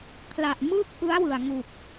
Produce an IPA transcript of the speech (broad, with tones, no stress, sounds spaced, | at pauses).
kʰ l a˨˩ ʔ m ɯː˥˩ k̚ ʔ ɯ˦˥ a̯ w ɯ˨˩ a̯ ŋ u˨˩ k̚